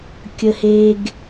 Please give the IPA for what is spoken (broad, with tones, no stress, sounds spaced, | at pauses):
kʲ ə˦ h e˦ ɡ